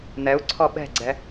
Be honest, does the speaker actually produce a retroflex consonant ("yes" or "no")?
no